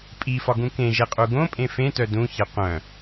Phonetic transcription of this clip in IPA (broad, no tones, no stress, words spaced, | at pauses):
pʼifɒɡũ kẽʒeqʼu ɡõpʼẽ fẽtœ dũçe qʷœ̃